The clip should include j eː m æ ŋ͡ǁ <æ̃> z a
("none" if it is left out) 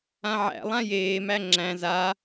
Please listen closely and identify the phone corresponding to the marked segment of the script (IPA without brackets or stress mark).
æ̃